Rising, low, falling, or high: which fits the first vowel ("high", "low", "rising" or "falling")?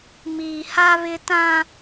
low